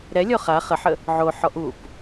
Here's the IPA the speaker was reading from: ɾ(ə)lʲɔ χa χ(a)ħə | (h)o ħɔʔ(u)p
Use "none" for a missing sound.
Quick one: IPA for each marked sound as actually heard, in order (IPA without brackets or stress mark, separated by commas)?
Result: ɛ, ə, ʕ, u